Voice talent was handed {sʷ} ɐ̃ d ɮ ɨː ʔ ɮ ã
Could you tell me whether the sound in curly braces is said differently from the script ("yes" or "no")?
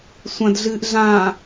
no